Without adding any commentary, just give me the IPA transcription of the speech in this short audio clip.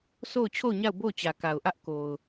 so˦˨ʊ̯ t͡ɕʰo˦˨ʊ̯ɲa˦˨ʊ̯ bo˦˨ʊ̯t͡ɕä˨ka˨ʊ̯ʔä˦ʔ ko˨ʊ̯

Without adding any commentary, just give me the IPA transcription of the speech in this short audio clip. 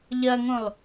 ʎɐŋõlˠ

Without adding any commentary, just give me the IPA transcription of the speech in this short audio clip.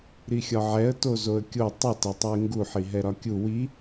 ɾixʲɒʕɛə̯ tozoə̯kʲo tˤot ɛtˤɛɪ̯ŋɡu ħiɦɛɾɒkʲu wi

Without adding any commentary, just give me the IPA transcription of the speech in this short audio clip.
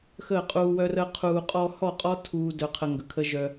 xəː˦˨qʼuː˧wœ˦rəː˦ qʰuː˧ qʼɔ˧hɔ˦˨qʼɔ˦ tʰuː˦dœ˧qʰə˧ ŋɡə˨kʰə˦ʒœ˧

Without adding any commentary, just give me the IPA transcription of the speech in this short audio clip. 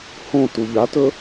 hõ tuʎatɵ

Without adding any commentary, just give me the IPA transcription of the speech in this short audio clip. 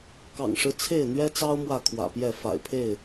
kɑ̰˨˩ŋʂɻ̩˦t͡sʰe˥˨ɪ̯ n̪ɥɛ˦t͡sɑ˦ʊ̯ mwä˥˨kʰwä̰˨˩pjɛ˥˨ fa̰˨˩ɪ̯pʰe˥˨ɪ̯

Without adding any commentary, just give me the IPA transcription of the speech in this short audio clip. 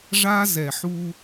ʐa˦ zɛ˨ħu˦

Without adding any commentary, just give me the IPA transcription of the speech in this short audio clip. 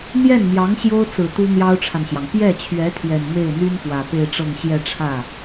n̪jɛ˥˩nmjɑ˧˥ŋ ɕjo˥ʊ̯t͡sɹ̩˨˩ t̪u˥n̪jɑ˥ʊ̯ʈ͡ʂʰa˨nɕjɑ˩ŋ pjɛ˥˩t͡ɕʰɥɛ˧˥ t̪ʰjɛ˨˩nme˥˩ɪ̯n̪y˥n pwä˨˩pe˥˧ɪ̯ʈ͡ʂɤ˥˧ŋ ɕjɛ˥˧ʈ͡ʂʰä˥˩

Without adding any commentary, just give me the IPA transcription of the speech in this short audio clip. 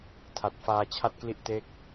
tʰa˨˩t̚ faː˧t͡ɕʰa˥˩t̚kli˥˩ʔ te˥˩k̚

